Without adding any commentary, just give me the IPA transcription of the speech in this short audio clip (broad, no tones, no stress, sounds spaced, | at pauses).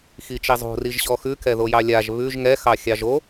x i t͡ʃ i zˤ o̤ r i ʒ ɕ ɔ x ʉ k ɛ ð o j ɑ lʲ a ʒ β ʉ ʒ ŋ ɛ x ɑ xʲ ɑ ʒ o